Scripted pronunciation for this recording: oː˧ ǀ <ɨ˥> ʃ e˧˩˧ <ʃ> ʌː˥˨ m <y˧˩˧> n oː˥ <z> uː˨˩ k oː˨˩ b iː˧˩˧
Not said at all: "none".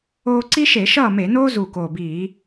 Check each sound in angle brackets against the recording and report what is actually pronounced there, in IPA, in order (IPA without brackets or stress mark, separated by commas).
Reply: i˥, ʃ, e˧˩˧, z